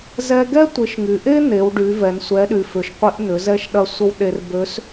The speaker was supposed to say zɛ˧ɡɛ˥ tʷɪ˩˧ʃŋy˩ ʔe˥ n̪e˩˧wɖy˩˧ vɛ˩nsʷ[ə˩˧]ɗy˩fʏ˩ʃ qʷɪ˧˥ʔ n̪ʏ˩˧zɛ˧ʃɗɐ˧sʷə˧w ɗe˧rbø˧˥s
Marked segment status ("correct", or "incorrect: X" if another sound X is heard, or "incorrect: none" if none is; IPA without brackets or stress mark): incorrect: ɛ˩˧